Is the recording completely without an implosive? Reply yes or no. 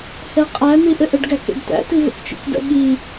no